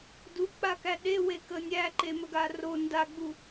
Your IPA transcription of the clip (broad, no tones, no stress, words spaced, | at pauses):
duk͡pakæ ɗewekə nʲæǃeməɡa ro ndaɡ͡bu